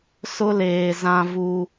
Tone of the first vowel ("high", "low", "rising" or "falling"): high